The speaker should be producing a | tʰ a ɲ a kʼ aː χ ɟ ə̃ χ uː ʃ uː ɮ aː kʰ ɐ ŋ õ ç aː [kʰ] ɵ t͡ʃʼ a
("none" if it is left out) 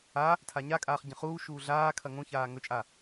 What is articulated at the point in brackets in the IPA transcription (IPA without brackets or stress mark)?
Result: ŋ